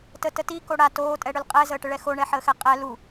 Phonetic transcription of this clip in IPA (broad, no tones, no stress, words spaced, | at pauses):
tətəti koɽa toː tʼɛɽʏlqʼɛ zəːʈəɭɛxo ɳɛħəːxɛqʼɛ lu